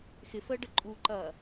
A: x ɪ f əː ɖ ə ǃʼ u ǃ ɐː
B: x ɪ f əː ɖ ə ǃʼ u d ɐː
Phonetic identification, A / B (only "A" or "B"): A